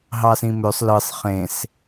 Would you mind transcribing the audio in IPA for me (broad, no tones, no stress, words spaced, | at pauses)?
ɦɑsĩmøsˤ lɯsˤ χẽs